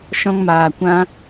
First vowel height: mid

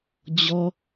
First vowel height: mid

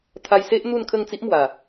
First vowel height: low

